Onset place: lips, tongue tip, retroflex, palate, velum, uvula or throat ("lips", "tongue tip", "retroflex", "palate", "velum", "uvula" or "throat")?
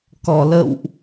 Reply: velum